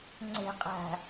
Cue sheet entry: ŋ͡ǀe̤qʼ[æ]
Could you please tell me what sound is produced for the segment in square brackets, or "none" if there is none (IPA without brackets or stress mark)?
æ̤